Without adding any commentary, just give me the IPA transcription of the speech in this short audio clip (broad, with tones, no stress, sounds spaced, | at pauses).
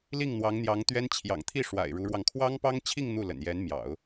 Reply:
l i˥˩ ŋ n̪ w ɑ˧˥ ŋ n̪ j ɑ˧˥ ŋ t̪ ɥ ɛ˥ n t͡ɕʰ j ɑ̰˨˩ ŋ t̪ʰ i˥˩ ʂ w a̰˨˩ ɪ̯ ɻ u˧˥ ɻ w ɑ˧ ŋ kʰ w ɑ˥ ŋ p ɑ˥ ŋ t͡ɕʰ i˥˧ ŋ n̪ u˥˩ l ə̰˨˩ n j ɛ˧˥ n m j ɑ̰˨˩˦ ʊ̯